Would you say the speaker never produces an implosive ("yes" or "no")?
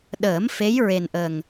no